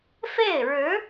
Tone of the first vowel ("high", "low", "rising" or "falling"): falling